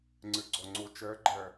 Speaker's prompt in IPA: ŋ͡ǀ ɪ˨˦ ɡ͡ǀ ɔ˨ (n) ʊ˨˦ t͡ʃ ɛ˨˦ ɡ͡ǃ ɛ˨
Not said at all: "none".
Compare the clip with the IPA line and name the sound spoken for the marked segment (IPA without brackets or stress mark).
ŋ͡ǀ